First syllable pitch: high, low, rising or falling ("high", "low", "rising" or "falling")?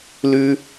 high